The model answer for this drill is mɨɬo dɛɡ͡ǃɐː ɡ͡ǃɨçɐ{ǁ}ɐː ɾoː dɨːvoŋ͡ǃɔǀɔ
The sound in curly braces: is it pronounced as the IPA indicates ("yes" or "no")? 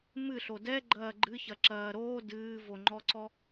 yes